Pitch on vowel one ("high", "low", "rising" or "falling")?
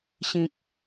low